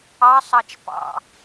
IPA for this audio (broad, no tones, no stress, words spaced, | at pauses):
ɑsˤɑt͡ʃ pɑ̰